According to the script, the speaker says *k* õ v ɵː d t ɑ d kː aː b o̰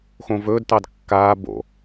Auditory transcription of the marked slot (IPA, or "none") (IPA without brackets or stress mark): x